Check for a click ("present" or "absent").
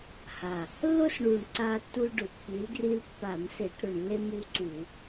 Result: present